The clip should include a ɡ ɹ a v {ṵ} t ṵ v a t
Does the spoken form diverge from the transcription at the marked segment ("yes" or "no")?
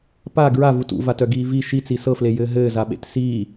yes